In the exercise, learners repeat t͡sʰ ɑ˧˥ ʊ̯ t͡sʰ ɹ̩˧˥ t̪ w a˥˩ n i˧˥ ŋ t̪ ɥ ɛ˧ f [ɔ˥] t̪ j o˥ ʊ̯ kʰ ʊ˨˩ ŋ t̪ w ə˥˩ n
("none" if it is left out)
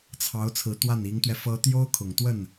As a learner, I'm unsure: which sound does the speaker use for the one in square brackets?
ɤ˥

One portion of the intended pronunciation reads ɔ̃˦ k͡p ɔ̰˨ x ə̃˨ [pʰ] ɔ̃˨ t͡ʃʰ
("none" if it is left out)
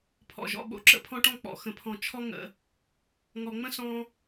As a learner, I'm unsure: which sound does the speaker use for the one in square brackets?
pʰ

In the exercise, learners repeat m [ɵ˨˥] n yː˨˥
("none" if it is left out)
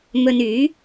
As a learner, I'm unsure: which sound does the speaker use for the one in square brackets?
ɵ˧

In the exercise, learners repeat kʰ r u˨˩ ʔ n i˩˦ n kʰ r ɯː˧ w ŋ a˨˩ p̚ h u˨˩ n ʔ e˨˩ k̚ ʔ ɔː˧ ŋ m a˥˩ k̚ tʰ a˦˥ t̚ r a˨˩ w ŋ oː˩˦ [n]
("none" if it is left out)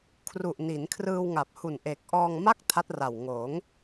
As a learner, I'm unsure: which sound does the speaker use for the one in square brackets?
ŋ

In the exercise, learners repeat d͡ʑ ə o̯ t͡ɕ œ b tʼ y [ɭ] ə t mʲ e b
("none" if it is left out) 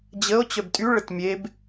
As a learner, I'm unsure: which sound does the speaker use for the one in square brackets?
ɭ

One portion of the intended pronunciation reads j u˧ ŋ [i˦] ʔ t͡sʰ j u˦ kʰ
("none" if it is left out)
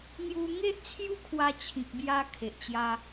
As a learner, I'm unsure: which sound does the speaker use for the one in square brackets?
e˦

